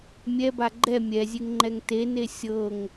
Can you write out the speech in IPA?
mʲ ɛ b a ɡ͡ǃ ɛ mʲ ɛ zʲ e ŋ ŋ͡ǃ ɛ ŋ t e n e sʲ ɤ ŋ

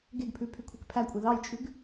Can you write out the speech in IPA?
ɡ e ɡ pʰ ʉ pʰ y kʷʰ e k pʰ æ kʷʼ e ð ɑ j t͡ʃʼ ʉ ɡ

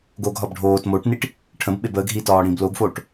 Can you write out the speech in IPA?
ɡ o ɡ ɦ ɒ b ɖʱ oː t m o ʈ n i ʈ | ʈʰ ə̃ b ɓ e b əː ɡ ɦ i t ɒː ɽ ĩ b l o ɡ f oː ʈ

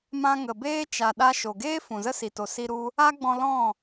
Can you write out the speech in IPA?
m ã˧ ŋ ə˨ b eː˦ t͡ʃ a˨ ɗ a˧ ʃ o˨ ɡ eː˦ f ũ˨ z ə˦ s i˨ t o˨ s i˧ ɾ u˧ | a˦ ɡ͡b ɔ̃˧ l ɔ̃˦˨

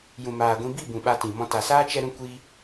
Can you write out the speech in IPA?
j ũ˨ m aː˨ ɡʷ ĩ˧ b i˦˨ b ũ˨ ɓ a˧ t ĩ˨ m ɔ̃˧ t a˨ s aː˦ t͡ʃ ɛ˧ ɾ ũ˧ kʷ iː˧

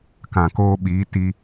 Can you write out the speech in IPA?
k ã˨ k oː˧ ɓ iː˨˦ t i˧

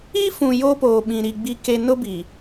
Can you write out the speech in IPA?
i˦ f ũ˨ j o˦ p oː˨ ɓ ĩ˨ ɾ i˨ ɡ͡b i˦ k e˦ n ʊ˦ b i˨

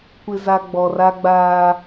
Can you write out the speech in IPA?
kʷ ɪ˨ z a˨ ɡ͡b ɔ˨ r a˦ ɡ͡b aː˦

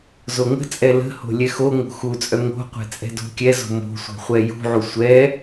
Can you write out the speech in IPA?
z o ŋ ə̤ t͡sʼ ɛ l ə̤ h o̤ lʲ ɛ x o ŋ o̤ x u t͡sʼ œ ŋ o̤ qʷ ɛ̤ t͡sʼ ɛ̤ d o̤ kʲ ɛ z o̤ m o̤ sʷ ɛ̤ χʷ ɛ j ṳ ʕ u sʷ ɛ

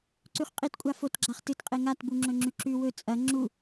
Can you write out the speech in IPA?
ǀ ʉ χ qʼ i t kʷʼ a f o t ɡ͡ǁ a χ t ɨ t qʼ e ŋ a t b u ŋ͡ǁ ɵ ŋ͡ǁ ʉ ǁ ʉ w ɵ t͡sʼ ɐ ŋ͡ǁ u

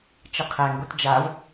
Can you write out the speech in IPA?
t͡ʃ ə qʰ æ ŋ ɡ o t d͡ʒ a v

